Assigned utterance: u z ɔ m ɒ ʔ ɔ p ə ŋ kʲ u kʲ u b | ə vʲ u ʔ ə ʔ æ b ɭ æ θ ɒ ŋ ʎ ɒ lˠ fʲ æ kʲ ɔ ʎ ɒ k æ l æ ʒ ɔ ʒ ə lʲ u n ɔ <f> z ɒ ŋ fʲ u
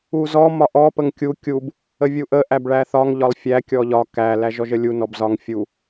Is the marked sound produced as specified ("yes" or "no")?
no